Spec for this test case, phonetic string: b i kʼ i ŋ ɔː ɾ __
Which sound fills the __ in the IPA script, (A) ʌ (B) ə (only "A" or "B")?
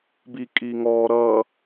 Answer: A